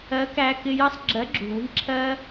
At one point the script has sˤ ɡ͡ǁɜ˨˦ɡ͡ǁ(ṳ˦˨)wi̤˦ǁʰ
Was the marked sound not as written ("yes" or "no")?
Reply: yes